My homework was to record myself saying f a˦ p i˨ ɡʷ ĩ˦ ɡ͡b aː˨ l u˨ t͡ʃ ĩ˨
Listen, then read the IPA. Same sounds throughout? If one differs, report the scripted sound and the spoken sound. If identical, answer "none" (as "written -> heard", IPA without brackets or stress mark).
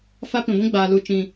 i˨ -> ĩ˨